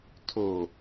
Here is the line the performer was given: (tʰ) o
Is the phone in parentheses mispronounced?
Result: no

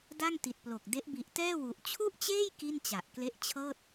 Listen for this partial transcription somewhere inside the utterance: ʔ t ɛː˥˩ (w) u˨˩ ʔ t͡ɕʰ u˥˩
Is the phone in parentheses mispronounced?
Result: no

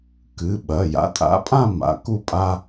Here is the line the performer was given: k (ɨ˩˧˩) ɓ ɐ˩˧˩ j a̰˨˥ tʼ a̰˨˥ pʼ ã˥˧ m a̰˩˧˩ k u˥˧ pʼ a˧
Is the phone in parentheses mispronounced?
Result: no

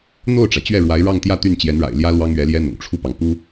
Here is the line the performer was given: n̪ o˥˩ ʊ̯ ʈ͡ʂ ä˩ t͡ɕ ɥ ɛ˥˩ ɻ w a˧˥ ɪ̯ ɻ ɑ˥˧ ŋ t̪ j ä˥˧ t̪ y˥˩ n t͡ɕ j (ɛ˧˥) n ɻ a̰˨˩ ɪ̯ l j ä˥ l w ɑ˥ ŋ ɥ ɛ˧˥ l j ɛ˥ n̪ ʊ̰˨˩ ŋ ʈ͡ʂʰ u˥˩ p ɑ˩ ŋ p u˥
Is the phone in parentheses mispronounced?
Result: no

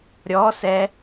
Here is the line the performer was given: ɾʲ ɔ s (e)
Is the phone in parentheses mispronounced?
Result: yes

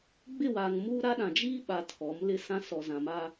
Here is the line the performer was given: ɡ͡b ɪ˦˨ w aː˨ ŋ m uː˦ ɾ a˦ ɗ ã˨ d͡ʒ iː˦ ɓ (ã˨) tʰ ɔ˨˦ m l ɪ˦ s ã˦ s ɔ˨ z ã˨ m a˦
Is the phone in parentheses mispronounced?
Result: yes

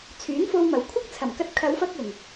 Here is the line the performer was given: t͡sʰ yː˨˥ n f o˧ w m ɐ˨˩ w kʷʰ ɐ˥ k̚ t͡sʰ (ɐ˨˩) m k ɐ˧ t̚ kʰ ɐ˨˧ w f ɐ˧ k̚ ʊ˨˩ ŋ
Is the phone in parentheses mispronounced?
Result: no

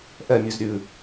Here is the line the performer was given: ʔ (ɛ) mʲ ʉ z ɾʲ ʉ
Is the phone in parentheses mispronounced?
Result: no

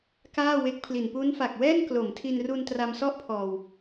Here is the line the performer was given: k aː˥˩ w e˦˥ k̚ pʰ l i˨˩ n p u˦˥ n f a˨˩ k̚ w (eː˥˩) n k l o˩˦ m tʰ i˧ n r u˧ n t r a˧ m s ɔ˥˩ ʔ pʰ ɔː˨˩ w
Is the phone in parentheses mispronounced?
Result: yes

